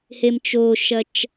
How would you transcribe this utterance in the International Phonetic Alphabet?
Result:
h e m t͡ʃ o ʃ ɐ t͡ʃ

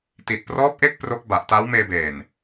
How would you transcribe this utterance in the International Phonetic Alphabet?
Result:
t i˨˩ t̚ p r ɔː˦˥ p̚ ʔ e˦˥ k̚ p r o˦˥ k̚ b a˨˩ ʔ t a˦˥ w m eː˧ b eː˨˩ n

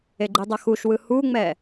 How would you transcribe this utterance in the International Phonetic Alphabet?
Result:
e ɡ͡ǃ i dˤ ʌ x u ʃ w ɯ h u ŋ͡m ɛ

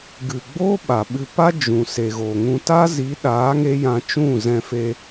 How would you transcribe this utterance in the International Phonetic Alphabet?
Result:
ɡ ɨ˨ ɡ͡b o˦ ɓ a˨ ɓ ɨ˧ p a˦ d͡ʒ ũ˨ s e˨ ɣ o˨ ŋ ũ˧ t a˦ z i˨˦ ɗ aː˨˦ ŋ e˧ j ã˧ t͡ʃ ũ˦˨ z ɛ̃˧ f e˧

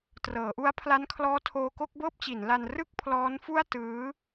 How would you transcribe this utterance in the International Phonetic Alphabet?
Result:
t r ɤː˩˦ ʔ u˦˥ a̯ pʰ l a˦˥ n kʰ l ɔː˦˥ tʰ oː˧ k o˥˩ k̚ b ɤː˥˩ p̚ t͡ɕ i˩˦ n l a˧ n r ɯ˥˩ k̚ pʰ l ɔː˦˥ n f u˥˩ a̯ t ɯː˦˥

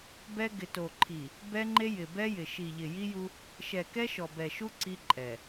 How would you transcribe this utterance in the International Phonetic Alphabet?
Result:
b ɛ˦ ɡ ɪ˨ t o˨ ǃʰ i˨ | b ɛ˦ ŋ͡ǃ e˦ j ɪ˨ b ɛ˦ j ɪ˨ ʃ i˨ ʎ ɪ˨ j i˦ j u˦ | ʃ ɛ˨ k ɛ˦ ʃ ɔ˨ b ɛ˨ ʃ u˦ ǀ i˦ ǃʼ ɛ˨

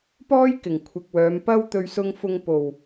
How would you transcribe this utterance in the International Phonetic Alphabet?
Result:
p ɔː˥ j k ɪ˨˩ ŋ kʷʰ ɪ˨ k̚ w œː˨˧ m p ɐ˥ w t̪ ɵ˧ ɥ s ʊ˧ ŋ f ʊ˧ ŋ p o˨˩ w

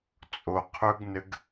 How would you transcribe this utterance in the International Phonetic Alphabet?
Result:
t͡sʼ o qʰ ɵ ɡ n ɘ ɡ

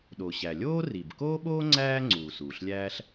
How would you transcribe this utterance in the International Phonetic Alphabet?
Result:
ɗ o˩ ɕ æ˩ lʲ oː˥ r i˩ b k oː˥ ɓ oː˥ ŋ͡ǀ æː˥ ŋ͡ǀ uː˩ s uː˩ ɬ lʲ æː˥ ɬ

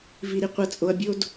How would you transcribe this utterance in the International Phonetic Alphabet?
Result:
v i˨ ɾ i˨ qʷ ɤ˨ t͡sʼ o˨ ɐ̯ bʲ o˦ d

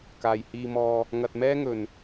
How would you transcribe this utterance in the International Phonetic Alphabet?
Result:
k aː˨˩ j h iː˧ m ɔː˧ | ŋ ɐ˨ t̚ m ɛː˥ ŋ ɵ˨˩ n

